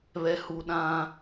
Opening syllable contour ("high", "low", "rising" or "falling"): low